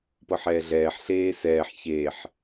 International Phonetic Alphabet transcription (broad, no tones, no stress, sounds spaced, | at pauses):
p ɤ ħ ɛː ɮ ɛː ħ ɬ eː s ɛː ħ ç e ħ